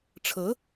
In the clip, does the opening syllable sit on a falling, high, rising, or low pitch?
rising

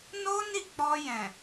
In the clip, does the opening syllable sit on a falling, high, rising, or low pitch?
high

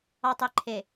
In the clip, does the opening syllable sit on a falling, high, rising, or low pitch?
low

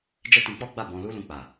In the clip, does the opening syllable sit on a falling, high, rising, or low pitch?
high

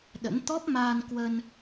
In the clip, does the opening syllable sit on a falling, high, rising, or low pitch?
rising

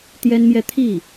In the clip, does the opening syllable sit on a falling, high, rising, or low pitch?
high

